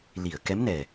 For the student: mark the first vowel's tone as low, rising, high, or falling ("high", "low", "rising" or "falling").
low